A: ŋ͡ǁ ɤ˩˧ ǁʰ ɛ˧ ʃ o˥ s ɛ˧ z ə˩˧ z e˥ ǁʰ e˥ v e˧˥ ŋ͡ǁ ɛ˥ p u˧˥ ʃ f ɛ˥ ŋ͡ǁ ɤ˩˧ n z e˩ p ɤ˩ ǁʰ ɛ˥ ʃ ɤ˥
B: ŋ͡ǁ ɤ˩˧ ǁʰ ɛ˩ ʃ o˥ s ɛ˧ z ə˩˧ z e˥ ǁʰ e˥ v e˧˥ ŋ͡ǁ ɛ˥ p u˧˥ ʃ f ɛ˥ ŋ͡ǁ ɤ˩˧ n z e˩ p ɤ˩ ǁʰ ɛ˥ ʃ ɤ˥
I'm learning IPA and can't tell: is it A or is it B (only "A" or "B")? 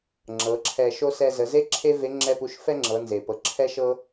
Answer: A